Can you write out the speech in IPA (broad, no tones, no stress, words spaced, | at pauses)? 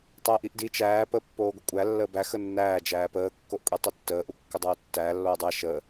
tˤəːʔiʔdi t͡ʃæː pəːpːoːɡʷəkʷʼæ lːəːbæ xənːæː d͡ʒæːpəː kːoʔkʷʼitˤətːəː ʔukːədˤoːtːæː lːoːdˤæ ʃəː